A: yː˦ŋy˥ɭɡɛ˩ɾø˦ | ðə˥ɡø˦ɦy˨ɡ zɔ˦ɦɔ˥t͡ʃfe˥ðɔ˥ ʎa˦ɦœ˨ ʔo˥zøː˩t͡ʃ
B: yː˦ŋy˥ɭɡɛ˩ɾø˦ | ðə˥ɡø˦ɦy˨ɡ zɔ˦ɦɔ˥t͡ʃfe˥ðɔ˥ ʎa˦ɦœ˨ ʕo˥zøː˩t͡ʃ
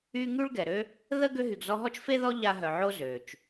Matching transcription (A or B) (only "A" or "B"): B